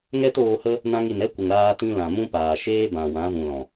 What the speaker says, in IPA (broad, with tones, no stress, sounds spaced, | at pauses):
ŋ ɛ˦ t oː˧ h ə˦ | n ã˧ ŋ i˨ n ɛ˦ kʷ ə˨ ŋ ɾ aː˧ t ĩ˧ l ã˨ m ũ˦ p aː˨ ʃ eː˦ b ã˨ w ã˨˦ v ũ˨ l ɔ̃˨